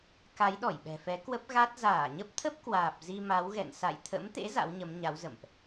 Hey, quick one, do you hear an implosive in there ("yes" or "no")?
yes